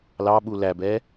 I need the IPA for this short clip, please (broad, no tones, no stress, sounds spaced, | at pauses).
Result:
l ɑ ɓ u l æ b ɛ